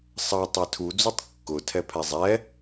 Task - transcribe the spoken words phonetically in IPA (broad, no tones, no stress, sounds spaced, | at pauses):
sˤ ʌ tˤ ɛ tʰ u d͡z u tˤ kː ʊ tʰ ɛ pʰ ɛ zˤ ɛ